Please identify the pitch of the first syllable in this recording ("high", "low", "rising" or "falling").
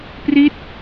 falling